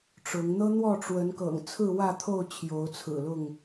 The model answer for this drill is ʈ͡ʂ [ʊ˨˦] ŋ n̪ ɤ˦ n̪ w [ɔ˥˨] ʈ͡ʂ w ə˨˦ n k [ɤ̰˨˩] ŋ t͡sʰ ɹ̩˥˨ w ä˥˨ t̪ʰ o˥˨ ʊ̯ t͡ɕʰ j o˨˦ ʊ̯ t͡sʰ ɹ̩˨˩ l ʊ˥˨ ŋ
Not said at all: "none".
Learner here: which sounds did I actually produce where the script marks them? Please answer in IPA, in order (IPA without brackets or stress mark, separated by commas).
ʊ˨˦, ɔ˥˨, ɤ̰˨˩